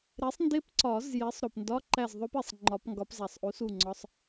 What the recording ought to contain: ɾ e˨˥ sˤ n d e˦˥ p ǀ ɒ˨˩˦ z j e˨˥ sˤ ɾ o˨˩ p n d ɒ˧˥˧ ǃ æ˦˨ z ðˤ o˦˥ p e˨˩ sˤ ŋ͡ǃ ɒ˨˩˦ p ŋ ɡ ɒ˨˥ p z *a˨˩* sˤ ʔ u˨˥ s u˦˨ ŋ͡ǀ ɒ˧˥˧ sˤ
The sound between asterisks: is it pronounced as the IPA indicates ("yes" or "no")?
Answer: no